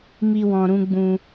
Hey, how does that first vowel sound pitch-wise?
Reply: high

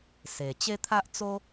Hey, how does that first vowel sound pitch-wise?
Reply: low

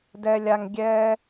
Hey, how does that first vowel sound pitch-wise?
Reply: high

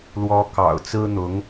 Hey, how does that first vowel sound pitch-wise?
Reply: high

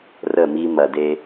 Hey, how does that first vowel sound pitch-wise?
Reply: falling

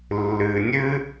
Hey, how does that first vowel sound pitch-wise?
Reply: low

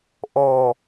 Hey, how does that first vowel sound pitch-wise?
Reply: low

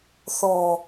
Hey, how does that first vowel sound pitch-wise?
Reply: low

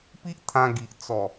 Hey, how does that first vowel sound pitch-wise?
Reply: high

